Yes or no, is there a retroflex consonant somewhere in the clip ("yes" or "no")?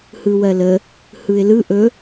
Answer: no